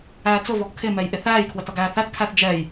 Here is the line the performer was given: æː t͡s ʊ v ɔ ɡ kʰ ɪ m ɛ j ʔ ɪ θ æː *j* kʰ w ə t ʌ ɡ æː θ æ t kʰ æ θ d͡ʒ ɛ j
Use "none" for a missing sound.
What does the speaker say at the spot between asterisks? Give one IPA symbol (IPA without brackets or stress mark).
j